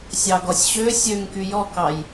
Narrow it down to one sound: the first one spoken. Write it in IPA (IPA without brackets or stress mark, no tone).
sʲ